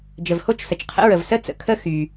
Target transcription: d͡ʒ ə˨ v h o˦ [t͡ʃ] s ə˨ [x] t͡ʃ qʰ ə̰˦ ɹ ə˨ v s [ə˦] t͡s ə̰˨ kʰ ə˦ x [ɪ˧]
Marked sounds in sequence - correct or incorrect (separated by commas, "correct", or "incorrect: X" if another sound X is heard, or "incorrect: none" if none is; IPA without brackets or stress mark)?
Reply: correct, incorrect: none, correct, incorrect: y˧